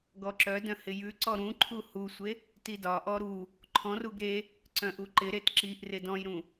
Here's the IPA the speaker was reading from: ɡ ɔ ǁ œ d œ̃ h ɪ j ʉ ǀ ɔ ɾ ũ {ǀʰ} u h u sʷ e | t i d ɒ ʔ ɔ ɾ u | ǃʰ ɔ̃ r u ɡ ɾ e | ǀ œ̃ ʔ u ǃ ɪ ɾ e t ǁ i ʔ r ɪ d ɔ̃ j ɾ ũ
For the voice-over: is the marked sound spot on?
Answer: no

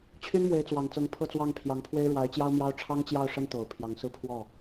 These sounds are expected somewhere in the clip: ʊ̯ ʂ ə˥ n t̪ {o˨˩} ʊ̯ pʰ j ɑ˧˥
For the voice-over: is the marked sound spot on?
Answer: yes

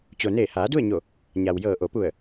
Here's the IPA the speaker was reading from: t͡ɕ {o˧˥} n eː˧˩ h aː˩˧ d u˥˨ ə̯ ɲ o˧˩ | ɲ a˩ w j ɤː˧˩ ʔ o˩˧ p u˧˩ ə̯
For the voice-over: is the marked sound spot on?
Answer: no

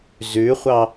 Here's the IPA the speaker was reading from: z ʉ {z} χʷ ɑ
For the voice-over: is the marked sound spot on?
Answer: no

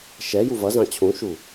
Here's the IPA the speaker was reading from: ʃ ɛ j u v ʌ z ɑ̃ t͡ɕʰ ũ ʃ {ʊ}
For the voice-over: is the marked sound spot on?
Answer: no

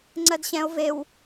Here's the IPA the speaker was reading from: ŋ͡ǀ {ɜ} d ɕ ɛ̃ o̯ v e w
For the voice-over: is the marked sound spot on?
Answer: yes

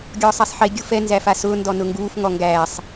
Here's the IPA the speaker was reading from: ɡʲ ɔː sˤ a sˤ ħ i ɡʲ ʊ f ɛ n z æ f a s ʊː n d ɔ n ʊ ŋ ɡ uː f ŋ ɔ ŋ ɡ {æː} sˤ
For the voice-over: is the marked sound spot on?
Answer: yes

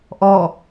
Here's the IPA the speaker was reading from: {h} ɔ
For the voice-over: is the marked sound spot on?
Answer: no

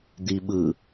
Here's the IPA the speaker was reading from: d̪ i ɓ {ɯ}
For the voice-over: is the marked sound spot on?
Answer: yes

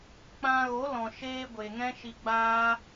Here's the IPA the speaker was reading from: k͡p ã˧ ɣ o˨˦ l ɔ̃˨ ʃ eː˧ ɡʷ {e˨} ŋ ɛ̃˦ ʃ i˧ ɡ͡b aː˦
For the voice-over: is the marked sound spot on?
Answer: yes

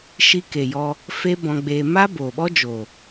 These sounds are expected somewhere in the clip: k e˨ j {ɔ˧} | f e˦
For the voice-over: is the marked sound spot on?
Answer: yes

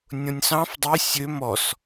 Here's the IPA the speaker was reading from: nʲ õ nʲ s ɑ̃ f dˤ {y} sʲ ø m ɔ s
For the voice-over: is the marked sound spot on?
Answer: yes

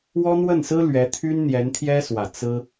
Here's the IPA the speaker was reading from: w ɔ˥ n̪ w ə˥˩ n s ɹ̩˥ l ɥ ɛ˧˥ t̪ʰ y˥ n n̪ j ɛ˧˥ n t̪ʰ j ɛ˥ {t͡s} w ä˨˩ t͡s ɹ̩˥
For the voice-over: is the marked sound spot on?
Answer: no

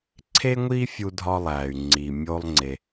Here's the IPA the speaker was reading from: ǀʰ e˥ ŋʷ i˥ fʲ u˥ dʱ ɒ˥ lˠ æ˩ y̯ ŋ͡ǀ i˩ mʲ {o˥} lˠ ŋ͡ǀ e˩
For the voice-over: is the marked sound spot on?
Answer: yes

